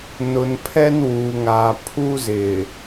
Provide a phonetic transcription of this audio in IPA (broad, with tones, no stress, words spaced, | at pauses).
nʊ˨npʰɛ˦n wuː˨ŋaː˨ pʰu˦zɪ˨